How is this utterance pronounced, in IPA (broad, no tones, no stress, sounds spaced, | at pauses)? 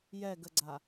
j ɛ ɡ ə ɡ͡ǀ a